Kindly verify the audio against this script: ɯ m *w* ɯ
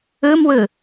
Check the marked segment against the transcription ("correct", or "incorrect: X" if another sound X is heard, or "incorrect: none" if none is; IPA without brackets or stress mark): correct